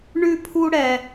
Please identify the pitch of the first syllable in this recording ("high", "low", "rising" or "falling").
high